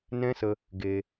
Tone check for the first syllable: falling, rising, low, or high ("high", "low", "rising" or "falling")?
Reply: high